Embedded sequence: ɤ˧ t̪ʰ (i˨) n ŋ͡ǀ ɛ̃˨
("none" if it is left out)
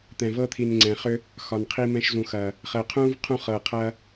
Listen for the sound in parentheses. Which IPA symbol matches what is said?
i˨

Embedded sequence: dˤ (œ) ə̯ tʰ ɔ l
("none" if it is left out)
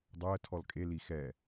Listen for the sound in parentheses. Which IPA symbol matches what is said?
œ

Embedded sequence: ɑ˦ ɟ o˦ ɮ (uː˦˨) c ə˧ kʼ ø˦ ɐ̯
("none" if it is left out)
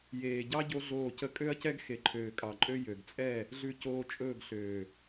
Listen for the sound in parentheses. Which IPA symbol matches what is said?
oː˦˨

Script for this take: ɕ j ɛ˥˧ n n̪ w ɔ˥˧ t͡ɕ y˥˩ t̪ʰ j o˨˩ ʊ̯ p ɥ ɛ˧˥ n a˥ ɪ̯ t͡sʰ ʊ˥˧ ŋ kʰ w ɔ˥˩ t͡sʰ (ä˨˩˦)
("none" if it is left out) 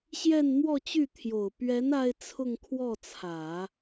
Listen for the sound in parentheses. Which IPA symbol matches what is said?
ä˨˩˦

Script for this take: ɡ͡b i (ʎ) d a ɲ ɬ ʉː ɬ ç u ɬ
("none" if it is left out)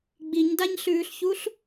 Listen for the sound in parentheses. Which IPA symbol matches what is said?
ɲ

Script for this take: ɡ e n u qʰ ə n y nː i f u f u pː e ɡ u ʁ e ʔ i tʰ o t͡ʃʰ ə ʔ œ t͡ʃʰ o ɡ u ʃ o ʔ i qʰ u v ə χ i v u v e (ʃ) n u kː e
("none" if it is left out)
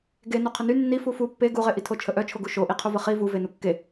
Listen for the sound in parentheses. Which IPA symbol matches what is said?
none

